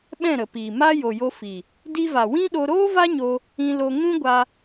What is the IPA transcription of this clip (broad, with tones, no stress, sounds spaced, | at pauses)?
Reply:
ɓ ɛ̃˦˨ ɾ ə˨ p iː˨ m a˦ j o˨ j o˧ f i˨ | d i˧ v a˨ w ĩ˦ ɗ o˧ ɾ oː˦ v a˦ ɲ o˧ | ĩ˧ l o˧ ŋ ũ˦ ɡʷ a˧